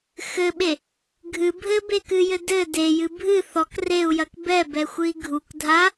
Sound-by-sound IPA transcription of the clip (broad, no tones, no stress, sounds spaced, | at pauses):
x ɘ ɓ e | ɡʱ ɨ bʱ ɘ b e k ɨ j ɘ d ɘ d e j ɨ bʱ ɨ θ ɔ k r e u̯ j ɐ k b ɛ b ɛ xʷ ɨ i̯ ɡʱ u k dʱ a